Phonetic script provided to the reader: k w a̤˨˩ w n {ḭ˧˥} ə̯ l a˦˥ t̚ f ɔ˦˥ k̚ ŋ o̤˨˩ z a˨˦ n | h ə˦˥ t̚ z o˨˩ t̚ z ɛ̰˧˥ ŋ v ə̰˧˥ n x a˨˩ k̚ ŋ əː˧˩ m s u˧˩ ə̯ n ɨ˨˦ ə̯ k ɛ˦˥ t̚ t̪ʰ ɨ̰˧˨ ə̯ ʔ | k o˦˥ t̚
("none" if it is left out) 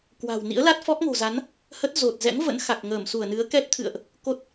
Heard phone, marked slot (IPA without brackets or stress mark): ḭ˧˥